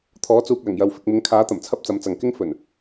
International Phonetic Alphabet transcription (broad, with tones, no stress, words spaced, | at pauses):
t̪ʰɔː˨˥t͡suː˨k̚lɐ˨˩ŋjɐ˨w fɪ˨k̚mɪ˨˥ŋkʰaː˨˥t̪ɐ˨˩m t͡sʰɐ˥p̚t͡sɐ˨˥m t͡sɐ˨ŋ kɪ˥ŋ fɵ˨˩n